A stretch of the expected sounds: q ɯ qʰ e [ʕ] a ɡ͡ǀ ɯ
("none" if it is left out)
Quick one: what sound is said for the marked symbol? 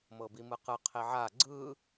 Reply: ʕ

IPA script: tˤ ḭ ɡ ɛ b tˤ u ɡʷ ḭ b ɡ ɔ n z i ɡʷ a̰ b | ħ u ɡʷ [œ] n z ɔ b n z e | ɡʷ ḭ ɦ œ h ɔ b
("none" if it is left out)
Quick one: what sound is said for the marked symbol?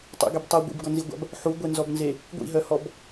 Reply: ɛ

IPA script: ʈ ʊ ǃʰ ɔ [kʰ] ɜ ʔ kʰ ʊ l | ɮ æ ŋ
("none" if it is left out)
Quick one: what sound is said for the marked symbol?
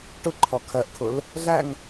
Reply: kʰ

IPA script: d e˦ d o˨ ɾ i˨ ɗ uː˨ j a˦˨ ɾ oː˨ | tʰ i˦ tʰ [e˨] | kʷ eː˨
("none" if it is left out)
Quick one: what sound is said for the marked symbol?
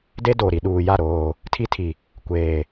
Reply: i˨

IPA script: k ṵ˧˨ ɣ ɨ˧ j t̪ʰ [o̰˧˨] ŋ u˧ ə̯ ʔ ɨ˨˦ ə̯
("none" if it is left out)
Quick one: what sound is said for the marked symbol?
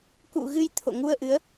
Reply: o̰˧˨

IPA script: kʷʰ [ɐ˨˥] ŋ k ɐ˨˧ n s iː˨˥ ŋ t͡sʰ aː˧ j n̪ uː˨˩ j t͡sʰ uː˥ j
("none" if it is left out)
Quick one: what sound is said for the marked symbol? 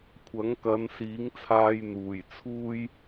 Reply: ɐ˨˥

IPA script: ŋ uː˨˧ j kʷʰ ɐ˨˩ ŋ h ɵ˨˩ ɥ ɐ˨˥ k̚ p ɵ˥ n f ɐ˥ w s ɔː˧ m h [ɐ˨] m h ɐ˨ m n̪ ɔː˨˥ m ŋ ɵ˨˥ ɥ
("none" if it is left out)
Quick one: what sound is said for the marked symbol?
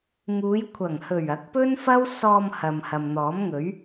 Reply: ɐ˨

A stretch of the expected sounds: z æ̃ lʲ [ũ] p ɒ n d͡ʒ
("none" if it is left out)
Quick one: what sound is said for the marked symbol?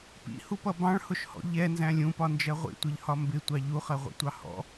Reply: ũ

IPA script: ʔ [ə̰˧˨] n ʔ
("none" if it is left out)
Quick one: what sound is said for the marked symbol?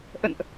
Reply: ə̰˧˨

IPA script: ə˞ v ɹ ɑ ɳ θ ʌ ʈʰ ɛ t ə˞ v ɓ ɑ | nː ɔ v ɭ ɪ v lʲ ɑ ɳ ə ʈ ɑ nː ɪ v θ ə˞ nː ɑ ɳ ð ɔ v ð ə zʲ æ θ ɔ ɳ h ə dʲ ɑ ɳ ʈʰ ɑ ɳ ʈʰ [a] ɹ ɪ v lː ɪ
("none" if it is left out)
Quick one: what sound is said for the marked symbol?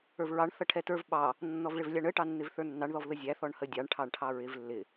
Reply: ɑ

